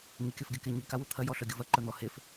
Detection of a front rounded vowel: present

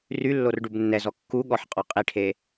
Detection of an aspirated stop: present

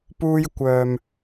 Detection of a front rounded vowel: present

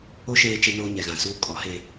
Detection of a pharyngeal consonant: absent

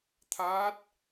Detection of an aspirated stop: present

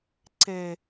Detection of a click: present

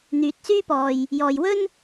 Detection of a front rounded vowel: present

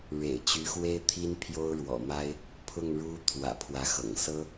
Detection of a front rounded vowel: present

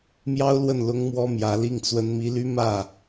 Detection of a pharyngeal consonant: absent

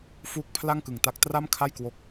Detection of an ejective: absent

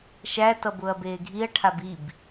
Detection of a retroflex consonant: present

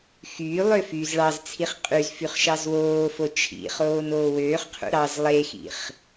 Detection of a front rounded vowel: present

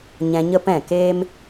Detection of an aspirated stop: absent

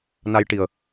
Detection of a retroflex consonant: present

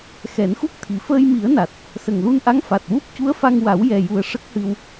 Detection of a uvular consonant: absent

